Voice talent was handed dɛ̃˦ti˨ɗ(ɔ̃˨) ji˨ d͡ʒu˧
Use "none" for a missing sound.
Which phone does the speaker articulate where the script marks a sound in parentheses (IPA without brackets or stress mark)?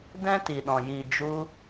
ɔ̃˨